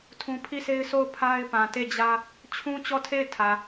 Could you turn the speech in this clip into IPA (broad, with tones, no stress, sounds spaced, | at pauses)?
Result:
tʰ ũ˦ pʰ i˦˨ s e˦ ɪ̯ s o˦˨ ʊ̯ pʰ a˦ ɪ̯ p ã˨ t e˦˨ d͡ʑ ä˦ | t͡ɕʰ ũ˦ t͡ɕ ɔ˦˨ tʰ e˦˨ ɪ̯ tʰ ä˨